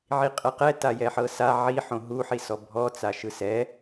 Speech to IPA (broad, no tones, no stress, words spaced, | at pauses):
ʕiqʼɛqɛ tajɛħɤsa ʕiħõ ɦuħisɔ bʱɔt͡saʃɯ sɛ